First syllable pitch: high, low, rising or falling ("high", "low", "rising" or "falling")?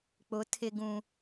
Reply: rising